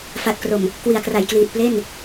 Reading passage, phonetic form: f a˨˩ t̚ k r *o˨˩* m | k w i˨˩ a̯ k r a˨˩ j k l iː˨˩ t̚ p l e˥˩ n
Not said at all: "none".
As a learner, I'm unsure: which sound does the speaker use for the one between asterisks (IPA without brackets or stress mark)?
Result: o˨˩